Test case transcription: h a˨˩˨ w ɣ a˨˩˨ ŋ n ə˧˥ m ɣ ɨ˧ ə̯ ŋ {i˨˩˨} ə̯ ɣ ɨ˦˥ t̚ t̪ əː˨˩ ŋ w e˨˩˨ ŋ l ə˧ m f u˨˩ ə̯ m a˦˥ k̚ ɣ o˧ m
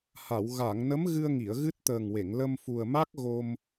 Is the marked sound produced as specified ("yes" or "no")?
yes